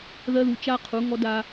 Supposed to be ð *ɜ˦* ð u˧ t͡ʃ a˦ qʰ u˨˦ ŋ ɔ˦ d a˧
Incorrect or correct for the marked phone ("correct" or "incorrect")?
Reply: correct